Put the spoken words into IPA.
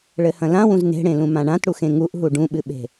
ɭ ɘ h ɐ̃ l ã w ũ z n e̤ ɽ ẽ l ũ m ã ɳ ã t ɽ u x ẽ ŋ u ʔ ɦ u ɖ ũ ɓ ɨ ɓ e̤

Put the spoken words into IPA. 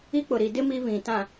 i˦ k͡p ʊ˨ ɾ i˨ d ɪ˦ m i˦ β ĩ˨ t ã˨

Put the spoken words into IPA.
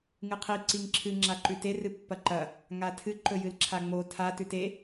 ŋ ɨ qʰ i ǀ i ŋ ǁʰ ɨ ŋ͡ǁ a ǃ ʉ t e r ɨ pː ɐ ǃ ɐ | ŋ a tʰ ɨ ǃ ɵ j ɨ l ǁʰ a ŋ͡m o tʰ a t ʉ t e

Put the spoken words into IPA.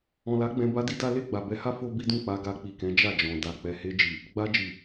ɔ̃˨ l a˨˦ ɡ͡b ɛ̃˧ b a˦ d i˦ d a˦ l e˦˨ ɡ͡b a˨ b ɛ˨˦ h a˦ f o˦ b i˦ d ũ˦˨ k͡p a˧ ɡ a˧ k͡p i˨ k ɛ̃˨˦ d͡ʒ a˦˨ d͡ʒ ɔ̃˨ d a˨ k͡p ɛ˨ h e˧ d͡ʒ i˨ | ɡ͡b a˧ d͡ʒ i˨

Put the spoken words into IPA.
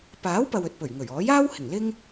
p aː˨˥ w p ɐ˨ w ɵ˨ t̚ p ɵ˨˩ ɥ ŋ ɵ˨˩ ɥ ɔː˨˥ j aː˥ w h ɪ˨˩ ŋ l ɪ˥ ŋ

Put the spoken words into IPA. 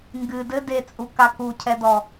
ŋ ɡ ɨ d ɘ d e t͡sʼ u k a k u cʰ ɛ d ɔ

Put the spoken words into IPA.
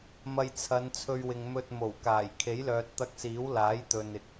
m ɐ˧ j t͡sʰ ɐ˨˧ n t͡sʰ ɵ˧ ɥ w ɪ˨ ŋ m ɵ˧ t̚ m o˨˩ w k aː˨˩ j kʰ e˨˥ j l œː˨ t̚ t̪ ɐ˧ k̚ s iː˨˥ w l aː˨˥ j t̪ ɵ˨ n ɪ˨ k̚

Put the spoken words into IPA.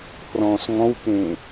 pʰ r ɔ̃ː s ŋ ɔ̃ w k ẽː

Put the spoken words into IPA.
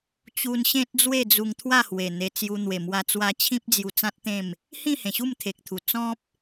t͡ɕ u˧ n ɕ ẽ˦ t̚ d͡z w e˥˧ d͡z u˧ ŋ t̪ʰ w a˥˧ h w e˨˩ n̪ e˧ t͡s j u˧ n̪ w e˨˩ m w a˧ t͡s w a˧ t͡ɕʰ ĩ˦ p̚ d͡z j u˧ t͡s ã˦ t̚ t̪ ẽ˥˧ m | h ĩ˥˧ h ẽ˨˩ ɕ u˥˧ m t̪ʰ e˨ k̚ t̪ʰ u˨˩ t͡s ɔ̃˦ p̚

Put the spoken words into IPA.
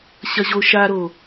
ɕ ɐ ʑ o ʃ a ɾ o

